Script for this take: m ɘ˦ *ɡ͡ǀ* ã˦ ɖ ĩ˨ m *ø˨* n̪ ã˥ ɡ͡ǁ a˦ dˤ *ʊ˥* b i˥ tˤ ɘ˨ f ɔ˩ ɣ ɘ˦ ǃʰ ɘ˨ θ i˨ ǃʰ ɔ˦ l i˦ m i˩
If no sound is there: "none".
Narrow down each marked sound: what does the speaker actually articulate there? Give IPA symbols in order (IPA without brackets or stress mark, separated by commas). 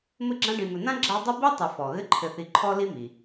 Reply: ɡ͡ǁ, ɘ˨, ʊ˥